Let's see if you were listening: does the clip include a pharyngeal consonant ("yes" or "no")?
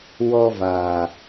no